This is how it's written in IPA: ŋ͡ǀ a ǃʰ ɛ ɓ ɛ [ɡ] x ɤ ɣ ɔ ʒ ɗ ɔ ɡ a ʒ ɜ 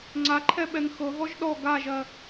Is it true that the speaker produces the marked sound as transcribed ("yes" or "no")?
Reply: no